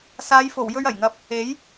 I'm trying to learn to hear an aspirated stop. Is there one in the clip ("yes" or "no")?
no